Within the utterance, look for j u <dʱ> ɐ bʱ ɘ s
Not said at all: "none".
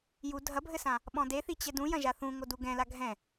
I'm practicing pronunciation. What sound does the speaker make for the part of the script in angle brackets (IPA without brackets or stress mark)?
dʱ